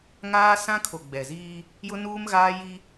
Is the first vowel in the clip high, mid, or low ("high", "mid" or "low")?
low